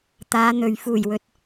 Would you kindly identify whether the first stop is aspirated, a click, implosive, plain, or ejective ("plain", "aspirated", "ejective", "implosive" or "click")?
plain